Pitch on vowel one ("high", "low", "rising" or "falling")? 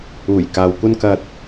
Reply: low